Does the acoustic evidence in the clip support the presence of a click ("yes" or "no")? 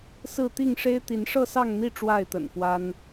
no